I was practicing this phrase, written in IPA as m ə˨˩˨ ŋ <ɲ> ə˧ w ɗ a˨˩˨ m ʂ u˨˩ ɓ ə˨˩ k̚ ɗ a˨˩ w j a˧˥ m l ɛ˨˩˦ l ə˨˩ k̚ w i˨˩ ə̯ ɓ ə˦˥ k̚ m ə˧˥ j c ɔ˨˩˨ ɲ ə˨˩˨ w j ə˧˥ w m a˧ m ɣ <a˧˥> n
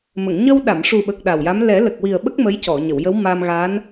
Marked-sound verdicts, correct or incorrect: correct, correct

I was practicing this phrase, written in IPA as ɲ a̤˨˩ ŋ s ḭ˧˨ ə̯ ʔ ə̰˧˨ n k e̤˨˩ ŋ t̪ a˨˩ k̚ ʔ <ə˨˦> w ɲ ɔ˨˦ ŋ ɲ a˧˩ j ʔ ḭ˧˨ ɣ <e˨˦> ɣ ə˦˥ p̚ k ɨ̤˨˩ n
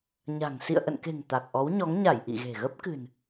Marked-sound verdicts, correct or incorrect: incorrect: ɔ˨˦, incorrect: e̤˨˩

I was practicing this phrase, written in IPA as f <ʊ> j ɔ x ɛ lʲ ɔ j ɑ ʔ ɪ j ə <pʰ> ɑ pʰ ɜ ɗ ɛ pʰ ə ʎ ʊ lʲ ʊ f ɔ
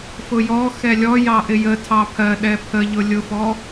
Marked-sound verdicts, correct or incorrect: correct, incorrect: tʰ

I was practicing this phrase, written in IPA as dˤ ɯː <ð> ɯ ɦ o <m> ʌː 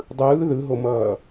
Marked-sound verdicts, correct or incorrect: correct, correct

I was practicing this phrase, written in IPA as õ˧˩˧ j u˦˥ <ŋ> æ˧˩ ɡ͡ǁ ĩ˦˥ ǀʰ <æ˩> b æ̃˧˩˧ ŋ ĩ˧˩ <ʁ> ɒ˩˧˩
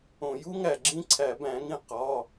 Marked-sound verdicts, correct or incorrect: correct, incorrect: æ˧˩˧, incorrect: q

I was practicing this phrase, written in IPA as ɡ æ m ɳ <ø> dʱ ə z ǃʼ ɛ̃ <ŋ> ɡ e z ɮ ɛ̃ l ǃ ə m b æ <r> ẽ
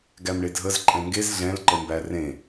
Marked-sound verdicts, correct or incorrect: incorrect: e, correct, correct

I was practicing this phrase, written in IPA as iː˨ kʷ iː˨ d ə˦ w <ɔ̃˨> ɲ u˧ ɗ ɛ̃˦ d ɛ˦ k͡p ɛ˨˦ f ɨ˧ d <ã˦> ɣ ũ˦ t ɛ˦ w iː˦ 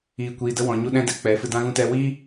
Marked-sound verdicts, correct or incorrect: correct, correct

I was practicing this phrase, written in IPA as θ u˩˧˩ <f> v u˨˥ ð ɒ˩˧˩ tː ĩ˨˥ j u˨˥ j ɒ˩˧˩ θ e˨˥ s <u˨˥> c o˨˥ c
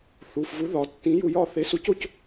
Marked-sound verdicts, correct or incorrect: correct, correct

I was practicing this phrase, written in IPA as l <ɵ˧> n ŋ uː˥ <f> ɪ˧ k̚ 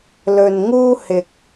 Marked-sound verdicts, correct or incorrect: correct, incorrect: h

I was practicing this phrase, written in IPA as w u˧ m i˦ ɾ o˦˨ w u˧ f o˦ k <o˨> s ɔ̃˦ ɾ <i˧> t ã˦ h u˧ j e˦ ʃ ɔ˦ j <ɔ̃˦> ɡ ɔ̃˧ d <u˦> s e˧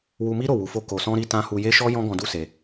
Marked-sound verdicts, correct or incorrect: incorrect: o˧, incorrect: i˦, correct, correct

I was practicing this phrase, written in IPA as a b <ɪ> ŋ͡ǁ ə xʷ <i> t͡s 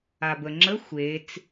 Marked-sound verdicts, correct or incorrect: incorrect: ə, incorrect: e

